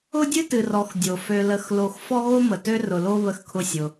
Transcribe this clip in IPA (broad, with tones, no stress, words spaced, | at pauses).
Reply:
ʊ˥dʲɨ˥ tɨ˨rɔ˨x dʲo˩ fø˨lə˨xlo˨x fɔ˦ɣo˦mə˩tø˦ rʊ˨lo˦ βə˨xkʰʊ˨ sʲʊ˨